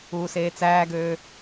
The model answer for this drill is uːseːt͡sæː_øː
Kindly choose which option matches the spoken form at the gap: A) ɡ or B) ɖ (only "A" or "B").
A